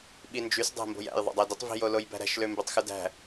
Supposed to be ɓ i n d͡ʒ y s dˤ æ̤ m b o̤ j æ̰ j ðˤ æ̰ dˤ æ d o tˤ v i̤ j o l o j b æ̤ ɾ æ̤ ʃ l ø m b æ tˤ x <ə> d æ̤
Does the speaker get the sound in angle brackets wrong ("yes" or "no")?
yes